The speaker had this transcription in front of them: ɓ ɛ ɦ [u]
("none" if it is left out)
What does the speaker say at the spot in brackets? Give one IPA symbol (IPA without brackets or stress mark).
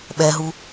u